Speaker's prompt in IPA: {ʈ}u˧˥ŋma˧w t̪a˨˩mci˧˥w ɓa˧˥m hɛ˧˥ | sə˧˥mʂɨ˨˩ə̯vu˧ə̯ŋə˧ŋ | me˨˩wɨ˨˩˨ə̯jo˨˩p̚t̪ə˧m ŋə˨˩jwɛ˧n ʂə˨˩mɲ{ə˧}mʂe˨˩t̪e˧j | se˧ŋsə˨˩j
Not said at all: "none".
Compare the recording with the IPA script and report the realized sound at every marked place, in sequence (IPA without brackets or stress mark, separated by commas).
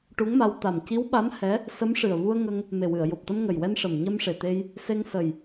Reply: ʈ, ə˧